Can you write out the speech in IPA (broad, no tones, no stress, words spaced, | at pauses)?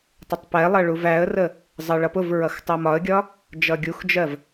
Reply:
tˤɪtˤpɛlˠʌ ɭuvæə̯rə | zˤɜɭʌpʊvɹʌx tˤɜmɒə̯ɡʲɒ | d͡ʒʌɡʲuxd͡ʒɜv